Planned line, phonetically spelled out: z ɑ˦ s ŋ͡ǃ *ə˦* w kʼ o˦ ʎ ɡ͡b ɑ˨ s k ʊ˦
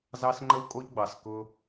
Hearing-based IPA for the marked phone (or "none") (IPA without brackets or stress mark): ə˦